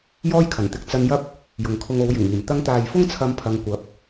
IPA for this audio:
j ɔː˥ j kʰ ɐ˨˩ n t̪ ɪ˧ k̚ t͡s ɐ˧ n j ɐ˥ p̚ | j ʊ˨ ŋ kʰ ʊ˧ ŋ o˨˧ w j ɪ˨˩ ŋ iː˨˩ m t̪ ɐ˧ ŋ t̪ aː˨ j f ʊ˥ ŋ t͡sʰ ɐ˧ m pʰ ɐ˨˧ ŋ kʷ ɐ˨˥ p̚

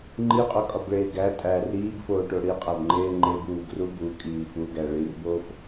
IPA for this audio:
ŋ͡ǃ i qʼ o kʼ ɒ b ɭ eː ɡ æ tʼ æ r iː b f oː ʈ o ɽ i qʼ æ b ŋ͡ǃ eː ŋ͡ǃ e b uː ɡ r u b u kʼ iː f u ɡ æ ɭ i r b oː f

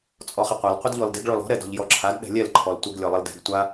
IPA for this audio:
t͡sʼ ɔ χ ɪ qʷ a l qʷ ə d ʎ ɔ l d ɪ ɡ ɭ ɔ l ɔ̤ ɾ ɛ d ɔ̤ ʎ j ɔ ǁʰ a d ɗ ɛ̤ lʲ ɛ l ǃʰ ɔ l tʷ ə ɡ lʲ ɔ lˠ ə l d ɛ̤ ɡ tʷ a

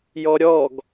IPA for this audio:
j ɔ ɾʲ ɔ ɡ

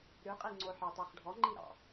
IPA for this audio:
ɾ ʉ qʼ i ŋ͡ǀ o ħ ɑ t ɑ χ ɖʱ ɔ ŋ͡ǃ i ɾ ɑ̰

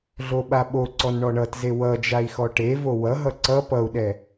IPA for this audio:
ɮ o ɓ a ɓ o ǀ ɔ n ɳ ɔ ɳ ʌ t z e w ʌ d͡ʒ a i̯ x ɔ ʈ e v o w ʌ ɦ ʌ ǀ ʌ p ʌ u̯ ɗ ɛ

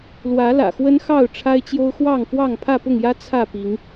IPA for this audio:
l w ä˨˦ l ä̰˨˩ x w ə˦ n x ɑ˥˨ ʊ̯ ʈ͡ʂʰ a˦ ɪ̯ t͡ɕ j o˦ ʊ̯ x w ɑ˥˨ ŋ f w ɑ˥˨ ŋ pʰ ä˥˨ p ʊ˥˨ ŋ j ä˦ t͡sʰ ä˥˨ p i˨˦ ŋ

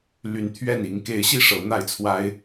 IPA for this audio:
l y˨˦ n t̪ʰ ɥ ɛ˥˨ n i˨˦ ŋ k e˨˦ ɪ̯ ɕ i˥˨ ʂ ɤ˨˦ n̪ a˥˨ ɪ̯ t͡sʰ w a˦ ɪ̯

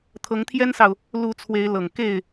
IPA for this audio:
t̪ʰ ɤ˨˦ ŋ t̪ʰ j ɛ˦ n s ɑ˨ ʊ̯ | l u˨˦ t͡sʰ w e˨˦ ɪ̯ l ɤ˨˩ ŋ k e˥˨ ɪ̯

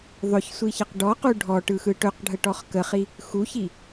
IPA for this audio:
ðˤ ɵ ç sʷ i ç ə q ɖ ɔ q u ɖʱ ɔ ʈ ɯ x ɯ ʈ ɵ q ɖʱ ə ʈ ɔ χ k ə χ i | x u ç i

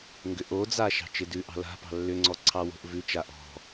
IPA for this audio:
ŋ ɡ ʏ ʔ o d͡z a ʃ ɑ̤ t͡ʃ ɪ d ʉ ʔ ɑ̤ l a̤ p ɑ̤ lː ʏ ŋ͡ǀ ɔ ǀʰ ɑ w o̤ ʔ v ʉ t͡ʃ a ʔ ɔ̤

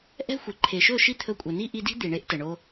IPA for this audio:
ʔ ɛ̤˦ xʷ e˨ ǃʰ e˨ ʃ ɵ˦˨ ʃ i˦ t̪ʰ ɵ˧ kʷʼ ə˨ n i˦ ʔ i˧ d i̤˦ d̪ i˨ ɳ e˦ ʔ t ə˨ ɳ o˧

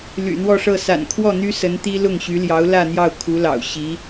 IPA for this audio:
l y̰˨˩ n̪ w ɔ˥˧ ʂ ɤ˥˩ s a̰˨˩ n kʰ w ɔ˥˩ n̪ y˥ s ə˧˥ n t̪ i˥ l ʊ˥˩ ŋ ɕ y˧˥ l j ɑ˧˥ ʊ̯ l ä˥˧ n̪ j ɑ˥˩ ʊ̯ kʰ u˧˥ l ɑ̰˨˩ ʊ̯ ɕ i˧˥

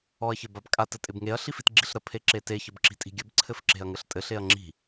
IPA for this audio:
ɔ ɐ̯ ç ɘ b a b kʼ a t ɘ tʼ ɪ b ŋ e ɐ̯ ɬ i f i t ɡ͡ǁ i ɬ ɾ ə pʰ e ǁ e t e ç ə b ǁ i̤ tʼ i̤ ɡʲ ɘ b ǀʰ ɘ f ǁ e̤ ɐ̯ ŋ ɘ ɬ tʼ ɘ ɬ e ɐ̯ ŋ͡ǁ i̤

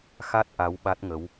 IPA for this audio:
x a˦˥ t̚ ʔ a˨˦ w ɓ a˦˥ t̚ ŋ ə˨˦ w

